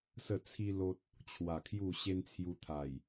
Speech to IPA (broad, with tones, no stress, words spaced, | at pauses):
sə˥˧t͡sʰi˦lo˦t̚ | t͡ɕʰwa˨˩ kʰju˥˧ɕe˦nt͡sʰju˧ t̪ʰa˨˩j